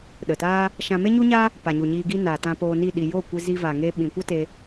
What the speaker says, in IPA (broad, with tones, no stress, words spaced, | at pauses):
ɗə˨taː˦ | ʃã˧me˦ɲu˦ɲa˦ | pa˨ɲu˨ɲiː˧ ɡi˧ naː˨tã˧poː˧ni˦˨ ɗi˨joː˦˨ kʷe˧zi˧va˨ŋe˧ ɓĩ˨kʷa˦ te˧